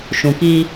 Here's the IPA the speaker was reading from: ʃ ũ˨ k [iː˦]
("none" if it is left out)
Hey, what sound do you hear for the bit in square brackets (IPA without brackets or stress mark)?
iː˦